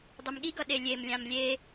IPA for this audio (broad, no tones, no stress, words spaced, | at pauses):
dˤumɠiɡʌ ɗelʲemlʲãm lʲe